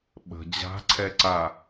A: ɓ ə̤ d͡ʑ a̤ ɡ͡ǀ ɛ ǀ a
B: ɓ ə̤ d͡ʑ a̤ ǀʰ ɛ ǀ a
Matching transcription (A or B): B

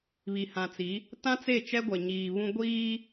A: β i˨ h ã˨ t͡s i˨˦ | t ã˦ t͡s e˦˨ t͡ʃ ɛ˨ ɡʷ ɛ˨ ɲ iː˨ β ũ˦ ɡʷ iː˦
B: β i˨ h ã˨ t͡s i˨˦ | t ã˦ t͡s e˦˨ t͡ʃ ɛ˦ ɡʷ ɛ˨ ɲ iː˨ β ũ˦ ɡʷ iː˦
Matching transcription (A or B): B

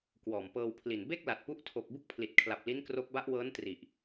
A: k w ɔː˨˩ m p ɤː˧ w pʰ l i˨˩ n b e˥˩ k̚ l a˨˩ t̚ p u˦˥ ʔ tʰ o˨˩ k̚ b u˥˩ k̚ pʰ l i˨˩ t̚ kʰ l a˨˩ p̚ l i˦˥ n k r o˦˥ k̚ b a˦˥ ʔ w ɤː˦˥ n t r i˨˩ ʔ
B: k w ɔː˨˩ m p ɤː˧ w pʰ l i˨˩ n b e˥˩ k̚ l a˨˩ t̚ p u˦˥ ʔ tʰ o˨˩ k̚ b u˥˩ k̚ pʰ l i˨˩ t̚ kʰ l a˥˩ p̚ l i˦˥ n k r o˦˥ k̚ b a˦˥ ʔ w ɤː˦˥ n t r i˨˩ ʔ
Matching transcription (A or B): A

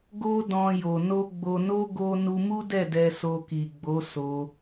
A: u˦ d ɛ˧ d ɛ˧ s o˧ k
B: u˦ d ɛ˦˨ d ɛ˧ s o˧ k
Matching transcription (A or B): B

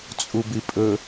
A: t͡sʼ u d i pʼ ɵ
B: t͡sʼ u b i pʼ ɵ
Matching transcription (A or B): B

